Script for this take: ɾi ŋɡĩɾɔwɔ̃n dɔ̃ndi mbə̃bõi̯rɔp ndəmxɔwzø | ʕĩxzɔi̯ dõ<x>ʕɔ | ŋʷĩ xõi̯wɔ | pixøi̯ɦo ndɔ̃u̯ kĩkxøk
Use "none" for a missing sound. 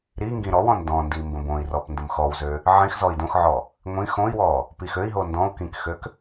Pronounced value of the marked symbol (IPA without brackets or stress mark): x